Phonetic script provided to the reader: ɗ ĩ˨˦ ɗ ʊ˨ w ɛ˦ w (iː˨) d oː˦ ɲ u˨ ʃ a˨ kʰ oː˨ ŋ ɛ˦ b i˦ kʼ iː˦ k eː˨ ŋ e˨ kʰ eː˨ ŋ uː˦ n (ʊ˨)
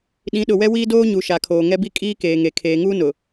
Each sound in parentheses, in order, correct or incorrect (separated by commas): incorrect, correct